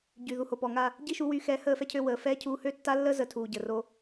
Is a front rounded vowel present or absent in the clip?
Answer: present